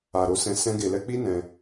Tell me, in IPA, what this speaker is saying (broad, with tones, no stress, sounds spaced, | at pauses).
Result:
a˨ ɾ o˧ s ɛ̃˧ s ɛ̃˧ ɡ e˨ l ɛ˧ k͡p i˦ n ɛ̃˧